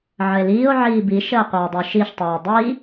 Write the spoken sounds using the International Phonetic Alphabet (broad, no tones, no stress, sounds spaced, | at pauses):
ʕ ə e̯ l iː o̯ ʕ iː b i ʃ əː qʷ əː o̯ dˤ u ʃ i ʃ tˤ øː dˤ i